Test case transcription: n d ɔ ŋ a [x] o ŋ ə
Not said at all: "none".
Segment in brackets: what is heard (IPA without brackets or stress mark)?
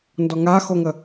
x